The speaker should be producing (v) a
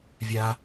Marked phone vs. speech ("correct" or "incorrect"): incorrect